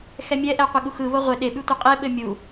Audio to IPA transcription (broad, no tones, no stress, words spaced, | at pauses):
xɛmʲɛʔɛ qʷeɠuxɯβo ʁʷɘ ɗeɓʉ tʷɘqʼeɓɘ mʲu